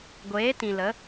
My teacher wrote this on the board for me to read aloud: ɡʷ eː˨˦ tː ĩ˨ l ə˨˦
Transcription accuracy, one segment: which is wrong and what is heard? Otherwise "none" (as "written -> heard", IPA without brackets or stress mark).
tː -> t